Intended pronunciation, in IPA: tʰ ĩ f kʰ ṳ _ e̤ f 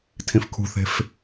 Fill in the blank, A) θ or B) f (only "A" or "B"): A